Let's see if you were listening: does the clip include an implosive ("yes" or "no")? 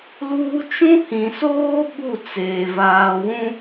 yes